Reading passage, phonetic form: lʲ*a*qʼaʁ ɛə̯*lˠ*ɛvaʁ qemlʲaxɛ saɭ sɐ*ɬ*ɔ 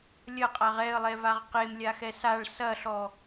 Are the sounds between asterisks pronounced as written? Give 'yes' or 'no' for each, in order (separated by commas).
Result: no, yes, yes